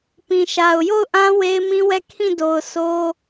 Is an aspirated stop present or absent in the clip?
present